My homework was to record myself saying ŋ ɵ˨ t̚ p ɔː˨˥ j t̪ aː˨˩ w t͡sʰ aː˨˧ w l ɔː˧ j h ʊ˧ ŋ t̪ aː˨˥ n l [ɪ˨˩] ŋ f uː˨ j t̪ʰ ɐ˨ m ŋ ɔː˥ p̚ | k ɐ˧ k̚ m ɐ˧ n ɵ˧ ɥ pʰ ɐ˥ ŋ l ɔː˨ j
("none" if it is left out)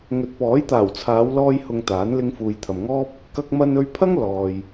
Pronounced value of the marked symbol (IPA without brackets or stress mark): ɪ˧